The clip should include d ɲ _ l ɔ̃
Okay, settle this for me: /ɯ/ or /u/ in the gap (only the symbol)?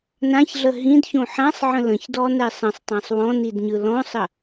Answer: ɯ